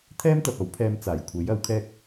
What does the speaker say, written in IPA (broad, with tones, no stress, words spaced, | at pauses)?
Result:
t̪ʰɛː˥mt̪ɐ˨p̚ ɐ˨˥wpʰɛː˧m t͡saː˨˩jkʷʰe˨˥j ɐ˨˥wkʰɛː˥k̚